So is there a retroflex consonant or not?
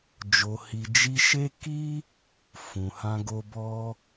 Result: no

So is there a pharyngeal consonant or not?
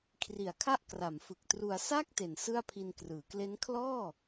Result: no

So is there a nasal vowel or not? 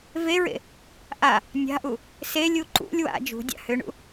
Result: no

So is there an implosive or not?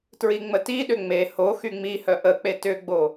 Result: yes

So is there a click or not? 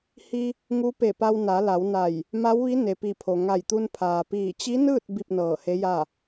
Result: no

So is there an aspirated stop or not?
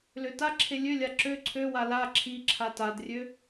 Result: yes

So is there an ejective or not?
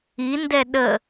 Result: no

